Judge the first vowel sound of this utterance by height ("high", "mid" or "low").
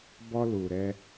mid